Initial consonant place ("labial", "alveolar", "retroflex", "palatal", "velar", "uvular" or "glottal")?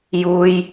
palatal